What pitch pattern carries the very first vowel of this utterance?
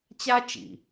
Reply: high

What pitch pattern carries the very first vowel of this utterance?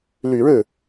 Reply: low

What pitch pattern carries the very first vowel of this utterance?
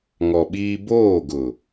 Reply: low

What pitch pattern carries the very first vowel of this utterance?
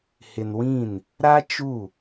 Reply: low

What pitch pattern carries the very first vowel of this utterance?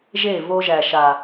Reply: falling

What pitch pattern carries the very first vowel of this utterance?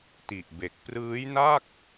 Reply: low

